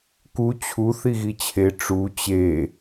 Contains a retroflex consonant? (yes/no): yes